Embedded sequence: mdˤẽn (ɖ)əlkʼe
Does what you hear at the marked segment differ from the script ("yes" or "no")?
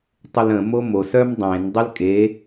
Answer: yes